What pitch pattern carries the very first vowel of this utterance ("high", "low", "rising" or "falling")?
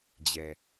low